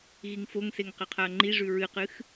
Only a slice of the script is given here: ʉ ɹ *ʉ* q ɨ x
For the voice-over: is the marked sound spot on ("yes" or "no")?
no